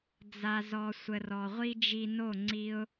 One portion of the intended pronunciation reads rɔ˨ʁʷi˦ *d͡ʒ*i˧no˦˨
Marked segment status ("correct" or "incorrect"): correct